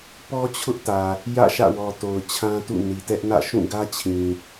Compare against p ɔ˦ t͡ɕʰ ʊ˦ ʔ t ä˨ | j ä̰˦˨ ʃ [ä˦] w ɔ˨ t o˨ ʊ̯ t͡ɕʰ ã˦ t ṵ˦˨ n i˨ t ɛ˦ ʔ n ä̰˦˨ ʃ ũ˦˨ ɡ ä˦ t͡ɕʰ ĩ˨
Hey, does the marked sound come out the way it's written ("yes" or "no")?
no